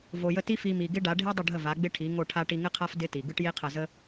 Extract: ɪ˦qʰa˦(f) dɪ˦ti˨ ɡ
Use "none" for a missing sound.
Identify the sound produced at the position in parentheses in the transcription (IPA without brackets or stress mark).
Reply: f